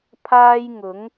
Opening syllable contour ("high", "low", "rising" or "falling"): high